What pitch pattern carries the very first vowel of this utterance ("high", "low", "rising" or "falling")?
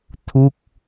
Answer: falling